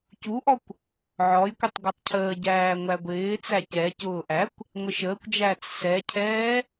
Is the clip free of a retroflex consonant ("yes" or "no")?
yes